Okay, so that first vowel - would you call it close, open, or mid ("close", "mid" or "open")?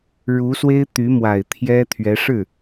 close